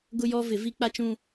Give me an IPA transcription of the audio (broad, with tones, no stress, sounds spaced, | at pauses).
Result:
ɡ ʊ˦ j ɔ˦ v ɪ˨˦ v i˦ k͡p a˦ t͡ʃ ũ˦